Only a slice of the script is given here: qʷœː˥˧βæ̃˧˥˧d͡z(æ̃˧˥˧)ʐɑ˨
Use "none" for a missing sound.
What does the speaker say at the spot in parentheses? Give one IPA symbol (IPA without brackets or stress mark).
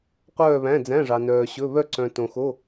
æ̃˧˥˧